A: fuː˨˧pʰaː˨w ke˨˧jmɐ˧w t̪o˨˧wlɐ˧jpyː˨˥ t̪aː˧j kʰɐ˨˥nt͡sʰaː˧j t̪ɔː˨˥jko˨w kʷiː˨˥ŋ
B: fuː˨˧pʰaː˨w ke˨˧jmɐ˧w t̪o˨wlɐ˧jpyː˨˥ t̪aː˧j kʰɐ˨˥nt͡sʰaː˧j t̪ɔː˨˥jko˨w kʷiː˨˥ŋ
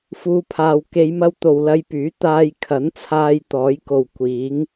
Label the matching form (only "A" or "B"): B